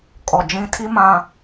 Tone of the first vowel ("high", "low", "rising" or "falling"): low